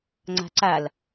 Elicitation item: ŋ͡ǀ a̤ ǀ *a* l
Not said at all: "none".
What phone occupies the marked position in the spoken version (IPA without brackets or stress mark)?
a